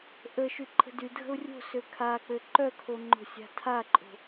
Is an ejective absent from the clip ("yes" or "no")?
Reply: no